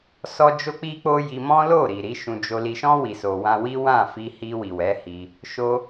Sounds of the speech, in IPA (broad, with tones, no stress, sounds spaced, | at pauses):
s ɔ˦ d͡ʒ o˦ k͡p i˦ k͡p o˦ j i˧ m ɔ̃˦ l o˦˨ ɾ i˨ ɾ i˨˦ ʃ ũ˧ d͡ʒ o˧ l i˧ ʃ ɔ̃˦ w i˧ s o˧ w ã˦ w i˦ w ã˦˨ f i˧ h i˧ w i˨ w ɛ˨˦ h i˧ | ʃ o˦